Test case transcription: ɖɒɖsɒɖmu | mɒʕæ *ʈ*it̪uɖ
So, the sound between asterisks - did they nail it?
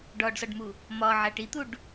yes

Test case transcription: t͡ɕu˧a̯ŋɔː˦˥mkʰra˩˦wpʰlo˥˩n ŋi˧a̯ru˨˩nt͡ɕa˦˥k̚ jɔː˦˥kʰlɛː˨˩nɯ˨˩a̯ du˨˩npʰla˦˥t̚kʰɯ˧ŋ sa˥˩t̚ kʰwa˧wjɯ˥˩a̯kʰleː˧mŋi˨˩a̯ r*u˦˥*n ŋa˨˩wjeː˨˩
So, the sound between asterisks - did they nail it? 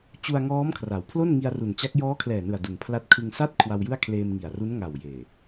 yes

